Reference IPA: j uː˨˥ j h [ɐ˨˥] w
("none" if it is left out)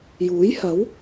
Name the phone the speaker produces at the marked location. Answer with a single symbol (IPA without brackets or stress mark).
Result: ɐ˨˥